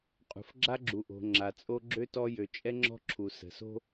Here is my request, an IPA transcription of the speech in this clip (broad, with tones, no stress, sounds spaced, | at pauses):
qʼ ṳ˨ f ɡ͡ǁ a˦ ɡ͡ǁ u˨ ʔ o̤˨ ŋ͡ǁ a˨ t͡sʼ o˦ ɡ͡ǁ ø˦ t ɔ˦ j ø˨ t͡ʃʼ ɛ˦ ŋ͡ǁ ɔ̤˦ ǁʰ u˨ s ə̤˨ s o̤˦